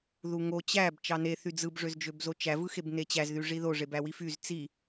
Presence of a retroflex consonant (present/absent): present